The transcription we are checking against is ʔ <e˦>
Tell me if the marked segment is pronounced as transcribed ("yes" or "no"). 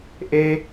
yes